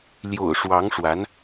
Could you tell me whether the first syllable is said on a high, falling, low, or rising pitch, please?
low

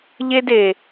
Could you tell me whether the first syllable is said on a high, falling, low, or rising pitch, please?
high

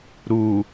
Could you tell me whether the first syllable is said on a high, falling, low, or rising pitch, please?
low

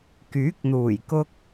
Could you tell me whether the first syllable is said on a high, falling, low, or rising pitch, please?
rising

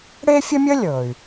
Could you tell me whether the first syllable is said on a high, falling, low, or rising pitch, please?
high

